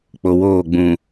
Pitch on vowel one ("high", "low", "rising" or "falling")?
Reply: low